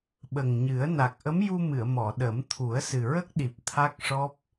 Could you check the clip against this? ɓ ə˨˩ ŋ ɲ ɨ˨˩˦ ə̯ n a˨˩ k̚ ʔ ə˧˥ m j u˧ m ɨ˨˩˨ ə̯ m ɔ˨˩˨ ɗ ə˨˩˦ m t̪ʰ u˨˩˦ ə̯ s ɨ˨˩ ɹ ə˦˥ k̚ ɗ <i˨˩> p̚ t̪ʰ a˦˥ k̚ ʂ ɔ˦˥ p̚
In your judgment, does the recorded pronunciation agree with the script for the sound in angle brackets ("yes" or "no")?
yes